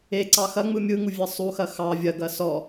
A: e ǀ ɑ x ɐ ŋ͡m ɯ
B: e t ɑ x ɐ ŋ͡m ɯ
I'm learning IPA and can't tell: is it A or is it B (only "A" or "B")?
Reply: A